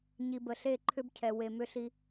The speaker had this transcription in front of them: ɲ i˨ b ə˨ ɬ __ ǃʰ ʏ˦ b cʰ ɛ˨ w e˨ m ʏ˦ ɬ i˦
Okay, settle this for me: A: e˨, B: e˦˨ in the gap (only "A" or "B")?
B